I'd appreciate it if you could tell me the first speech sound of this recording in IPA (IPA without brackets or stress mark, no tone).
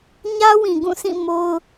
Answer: ɲ